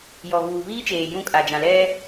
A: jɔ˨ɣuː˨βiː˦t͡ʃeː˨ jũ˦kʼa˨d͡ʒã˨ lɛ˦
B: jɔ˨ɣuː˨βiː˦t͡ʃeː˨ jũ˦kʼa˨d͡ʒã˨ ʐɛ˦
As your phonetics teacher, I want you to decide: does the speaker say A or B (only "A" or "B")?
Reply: A